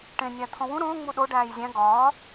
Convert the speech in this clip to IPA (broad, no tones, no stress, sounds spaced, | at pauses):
ʈ ẽ nʲ æ t̪ʰ õ w ũ ɾ õː ŋ͡m u ɗ o ɖ æː j zʲ æ̃ ɡ ɒː